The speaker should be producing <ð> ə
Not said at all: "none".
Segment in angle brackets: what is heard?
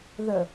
ð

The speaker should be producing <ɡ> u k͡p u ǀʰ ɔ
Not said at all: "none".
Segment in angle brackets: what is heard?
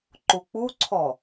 ǃ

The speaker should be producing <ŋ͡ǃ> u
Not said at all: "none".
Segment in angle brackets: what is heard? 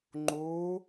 ŋ͡ǃ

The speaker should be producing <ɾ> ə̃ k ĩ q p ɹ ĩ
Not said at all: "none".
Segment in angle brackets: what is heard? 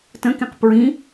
t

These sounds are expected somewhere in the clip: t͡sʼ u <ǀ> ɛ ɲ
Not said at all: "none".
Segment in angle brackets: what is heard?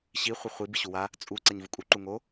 ǀ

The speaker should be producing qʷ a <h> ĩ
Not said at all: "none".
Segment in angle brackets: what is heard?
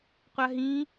ɦ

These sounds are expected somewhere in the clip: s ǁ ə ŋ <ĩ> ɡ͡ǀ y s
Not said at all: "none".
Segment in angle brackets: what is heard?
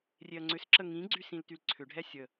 ĩ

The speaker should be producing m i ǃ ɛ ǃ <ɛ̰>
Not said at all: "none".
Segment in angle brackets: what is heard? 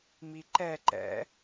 ɛ̰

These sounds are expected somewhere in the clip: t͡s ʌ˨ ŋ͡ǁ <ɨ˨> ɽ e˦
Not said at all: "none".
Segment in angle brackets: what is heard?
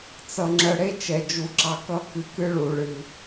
ə˨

